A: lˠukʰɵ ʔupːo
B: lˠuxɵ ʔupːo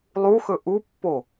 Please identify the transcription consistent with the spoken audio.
B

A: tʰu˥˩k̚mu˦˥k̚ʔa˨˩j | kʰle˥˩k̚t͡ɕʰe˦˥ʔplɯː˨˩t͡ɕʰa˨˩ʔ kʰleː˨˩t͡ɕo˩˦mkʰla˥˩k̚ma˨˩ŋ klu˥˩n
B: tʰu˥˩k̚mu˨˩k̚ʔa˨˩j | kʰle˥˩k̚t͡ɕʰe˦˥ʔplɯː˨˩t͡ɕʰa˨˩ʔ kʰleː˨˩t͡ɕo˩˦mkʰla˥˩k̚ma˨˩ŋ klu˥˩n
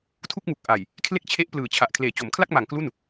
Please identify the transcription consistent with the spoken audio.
B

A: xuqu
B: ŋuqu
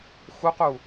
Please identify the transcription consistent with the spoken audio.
A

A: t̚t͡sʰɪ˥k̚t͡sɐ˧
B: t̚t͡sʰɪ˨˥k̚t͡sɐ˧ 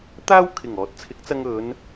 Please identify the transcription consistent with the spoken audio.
B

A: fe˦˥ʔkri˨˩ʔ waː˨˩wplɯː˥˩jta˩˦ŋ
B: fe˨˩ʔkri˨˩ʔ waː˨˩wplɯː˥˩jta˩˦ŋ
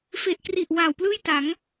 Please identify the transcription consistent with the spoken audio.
B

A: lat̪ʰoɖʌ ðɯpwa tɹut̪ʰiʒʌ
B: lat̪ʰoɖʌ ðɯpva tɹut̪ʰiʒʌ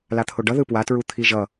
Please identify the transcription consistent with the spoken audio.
A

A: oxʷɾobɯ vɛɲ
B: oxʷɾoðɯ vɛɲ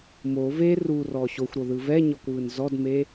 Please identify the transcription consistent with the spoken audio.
B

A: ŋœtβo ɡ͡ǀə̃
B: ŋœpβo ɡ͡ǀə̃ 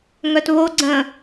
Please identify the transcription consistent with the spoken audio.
A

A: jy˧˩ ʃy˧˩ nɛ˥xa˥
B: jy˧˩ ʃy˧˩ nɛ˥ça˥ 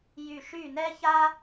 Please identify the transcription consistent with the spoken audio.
B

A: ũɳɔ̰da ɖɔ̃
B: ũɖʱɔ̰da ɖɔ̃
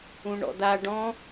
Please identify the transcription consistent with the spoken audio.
A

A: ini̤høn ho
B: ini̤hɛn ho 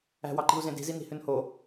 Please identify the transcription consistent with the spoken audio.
A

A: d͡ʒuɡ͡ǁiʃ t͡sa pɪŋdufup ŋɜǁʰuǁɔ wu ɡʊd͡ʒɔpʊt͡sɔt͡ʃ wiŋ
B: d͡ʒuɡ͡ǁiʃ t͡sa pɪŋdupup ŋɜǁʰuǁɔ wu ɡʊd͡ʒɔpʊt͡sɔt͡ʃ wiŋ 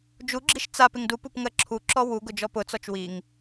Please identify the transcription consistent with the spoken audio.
B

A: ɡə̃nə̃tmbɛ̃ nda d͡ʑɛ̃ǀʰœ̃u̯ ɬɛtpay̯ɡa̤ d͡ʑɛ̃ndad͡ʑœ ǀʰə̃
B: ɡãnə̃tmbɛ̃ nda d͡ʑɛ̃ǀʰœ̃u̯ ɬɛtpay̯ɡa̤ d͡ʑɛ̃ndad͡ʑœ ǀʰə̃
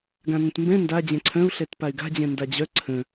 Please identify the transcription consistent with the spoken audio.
B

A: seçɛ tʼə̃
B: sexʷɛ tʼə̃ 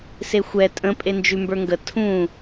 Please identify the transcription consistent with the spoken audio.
B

